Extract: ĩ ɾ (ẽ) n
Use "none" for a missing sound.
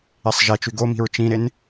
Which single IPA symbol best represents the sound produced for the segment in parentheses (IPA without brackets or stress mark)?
e